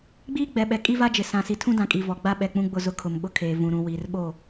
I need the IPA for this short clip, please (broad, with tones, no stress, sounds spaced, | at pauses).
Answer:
ɡ͡b iː˦ ɡ͡b ɛ˨ ɓ ɛ˨ kʼ i˦ v a˦ d͡ʒ ɪ˨ s ã˨ s i˨ tʰ ũ˦ d ã˨ kʼ i˨ v ɔ˨ ɡ͡b a˦ ɓ ɛ˨ k͡p ũ˦ ɡ͡b ʊ˦˨ z ʊ˦ kʰ ʊ˨ m ɓ ʊ˦ kʰ eː˨ v ũ˨ ɾ ũ˨ w iː˨ r ɓ o˦˨